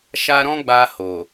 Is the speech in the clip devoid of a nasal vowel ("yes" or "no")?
no